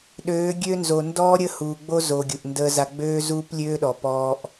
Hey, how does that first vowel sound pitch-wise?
rising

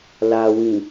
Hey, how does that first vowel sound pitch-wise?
low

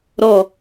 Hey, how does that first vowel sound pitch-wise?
low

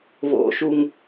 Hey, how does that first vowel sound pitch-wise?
low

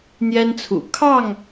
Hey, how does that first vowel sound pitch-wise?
high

